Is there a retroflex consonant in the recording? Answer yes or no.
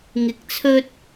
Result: no